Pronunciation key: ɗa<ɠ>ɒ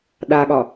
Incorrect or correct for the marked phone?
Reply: correct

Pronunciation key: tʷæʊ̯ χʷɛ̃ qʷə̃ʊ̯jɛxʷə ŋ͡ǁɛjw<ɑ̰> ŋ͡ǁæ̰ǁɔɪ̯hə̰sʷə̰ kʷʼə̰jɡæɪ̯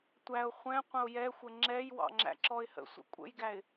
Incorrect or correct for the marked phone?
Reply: correct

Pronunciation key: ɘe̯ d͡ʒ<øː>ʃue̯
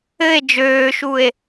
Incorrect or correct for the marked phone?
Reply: correct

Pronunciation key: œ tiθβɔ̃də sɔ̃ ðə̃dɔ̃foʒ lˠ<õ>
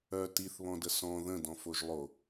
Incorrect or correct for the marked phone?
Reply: incorrect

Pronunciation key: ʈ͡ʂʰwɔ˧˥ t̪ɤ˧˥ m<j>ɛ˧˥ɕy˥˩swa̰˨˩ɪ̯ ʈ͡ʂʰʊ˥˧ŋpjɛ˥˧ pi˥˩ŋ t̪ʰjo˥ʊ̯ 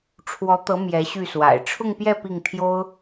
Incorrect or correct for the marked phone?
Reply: correct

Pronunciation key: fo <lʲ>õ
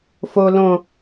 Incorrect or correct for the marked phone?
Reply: incorrect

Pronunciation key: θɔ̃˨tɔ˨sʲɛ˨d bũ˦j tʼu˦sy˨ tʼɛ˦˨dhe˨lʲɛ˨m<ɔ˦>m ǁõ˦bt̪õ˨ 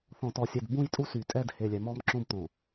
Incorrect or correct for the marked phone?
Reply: correct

